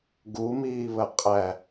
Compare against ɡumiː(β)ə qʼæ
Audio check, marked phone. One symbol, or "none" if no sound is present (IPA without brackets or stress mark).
β